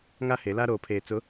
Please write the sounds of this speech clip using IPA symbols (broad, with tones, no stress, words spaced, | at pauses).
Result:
ŋa˦he˨˦la˦ ɾoː˨pʰeː˨t͡sʊ˨˦